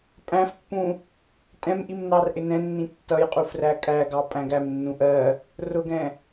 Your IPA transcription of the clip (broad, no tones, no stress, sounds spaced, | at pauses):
pʼ æ̃ f pː ũ | tʼ ɛ̃ m ʔ i m n ɑ r ʔ ɪ n ɛ̃ nː ĩ tː ʌ j qʼ u f r æ kʼ æ ɡ ɑ pʼ æ̃ ɡ æ m nː ũ ʔ ɜ | r ʊ ɡ ɛ̃